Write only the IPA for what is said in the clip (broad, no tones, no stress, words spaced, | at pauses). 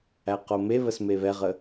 æqomeβəs meβɛʁə